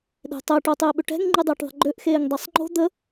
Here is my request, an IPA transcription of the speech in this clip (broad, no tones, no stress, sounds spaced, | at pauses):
ɗ e̤ tˤ ɛ ʈ o tˤ e ɓ ʏ ʈ ɛ̤ ŋ ŋ͡ǃ y dˤ e ʈ ðˤ ə̤ ɡ͡ǃ ø ʔ x eː ŋ dˤ ɛ sˤ ŋ͡ǃ o̤ d̪ ə